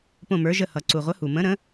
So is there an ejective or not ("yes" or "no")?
no